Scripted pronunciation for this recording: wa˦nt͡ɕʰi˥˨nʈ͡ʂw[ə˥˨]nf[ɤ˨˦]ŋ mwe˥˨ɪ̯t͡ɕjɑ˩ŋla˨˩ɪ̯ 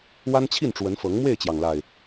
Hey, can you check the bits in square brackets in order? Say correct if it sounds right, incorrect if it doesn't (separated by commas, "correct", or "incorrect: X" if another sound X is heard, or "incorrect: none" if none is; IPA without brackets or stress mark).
incorrect: ə˨˦, correct